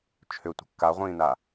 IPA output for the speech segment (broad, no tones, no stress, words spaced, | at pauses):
t͡ʃʰʏtʷə̤ kːaʁʷĩːna